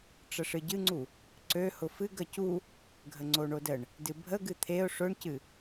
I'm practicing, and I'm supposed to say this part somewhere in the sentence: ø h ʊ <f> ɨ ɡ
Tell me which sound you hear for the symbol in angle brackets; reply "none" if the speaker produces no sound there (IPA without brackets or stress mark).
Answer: f